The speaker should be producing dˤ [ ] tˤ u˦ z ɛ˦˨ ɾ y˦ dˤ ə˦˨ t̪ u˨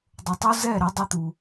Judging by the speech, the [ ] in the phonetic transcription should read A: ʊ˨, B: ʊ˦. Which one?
A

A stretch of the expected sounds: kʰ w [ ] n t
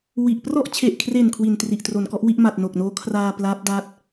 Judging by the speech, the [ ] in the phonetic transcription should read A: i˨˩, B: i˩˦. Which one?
A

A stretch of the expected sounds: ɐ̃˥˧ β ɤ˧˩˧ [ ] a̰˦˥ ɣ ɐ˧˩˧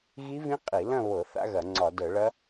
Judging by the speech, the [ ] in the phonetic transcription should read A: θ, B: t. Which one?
A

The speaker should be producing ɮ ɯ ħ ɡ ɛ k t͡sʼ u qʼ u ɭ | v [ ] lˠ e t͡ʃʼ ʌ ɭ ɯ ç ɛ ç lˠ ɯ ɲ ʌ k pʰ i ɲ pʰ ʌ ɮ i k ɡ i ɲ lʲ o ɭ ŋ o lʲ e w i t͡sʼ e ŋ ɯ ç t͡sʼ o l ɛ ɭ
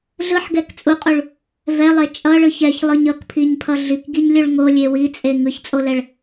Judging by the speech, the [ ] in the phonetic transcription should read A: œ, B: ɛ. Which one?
B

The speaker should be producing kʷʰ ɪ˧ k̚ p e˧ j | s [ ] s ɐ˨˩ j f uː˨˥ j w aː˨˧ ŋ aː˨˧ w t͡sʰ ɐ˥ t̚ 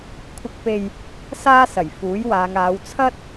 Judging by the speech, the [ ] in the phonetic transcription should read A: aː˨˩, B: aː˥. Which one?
B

